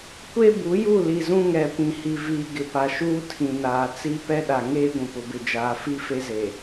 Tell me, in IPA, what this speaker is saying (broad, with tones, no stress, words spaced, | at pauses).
kʷe˦bu˨˦ju˦˨li˨ zũ˦ŋɛ˨pĩ˨hi˨ viː˨ɡɪ˨pa˨ʃuː˦ tʰĩ˨naː˨ t͡si˦pɛ˦ɗa˨ ŋeː˦ ɡʷũ˨pʊ˨bɪ˨ d͡ʒaː˨fi˦fe˦ze˨